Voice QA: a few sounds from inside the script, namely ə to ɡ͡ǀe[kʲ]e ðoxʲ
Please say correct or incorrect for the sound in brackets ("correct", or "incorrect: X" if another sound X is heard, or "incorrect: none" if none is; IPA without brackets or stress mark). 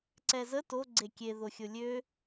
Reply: correct